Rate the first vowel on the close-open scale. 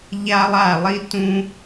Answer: open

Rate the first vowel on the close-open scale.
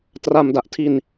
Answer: open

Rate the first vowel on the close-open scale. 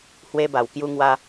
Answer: mid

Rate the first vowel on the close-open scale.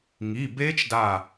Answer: close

